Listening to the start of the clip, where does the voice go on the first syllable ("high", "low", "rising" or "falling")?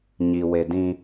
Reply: low